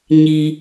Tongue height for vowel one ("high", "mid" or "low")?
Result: high